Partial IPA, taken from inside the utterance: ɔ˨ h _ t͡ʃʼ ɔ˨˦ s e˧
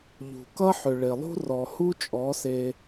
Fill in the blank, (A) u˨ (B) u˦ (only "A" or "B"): B